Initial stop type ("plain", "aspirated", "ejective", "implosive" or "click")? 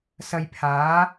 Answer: aspirated